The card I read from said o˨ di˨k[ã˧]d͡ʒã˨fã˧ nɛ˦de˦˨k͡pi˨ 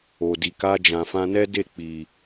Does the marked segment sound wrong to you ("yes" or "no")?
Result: yes